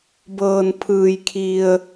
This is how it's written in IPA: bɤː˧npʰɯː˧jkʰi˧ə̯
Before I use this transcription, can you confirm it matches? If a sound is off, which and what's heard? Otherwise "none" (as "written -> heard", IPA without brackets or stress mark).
none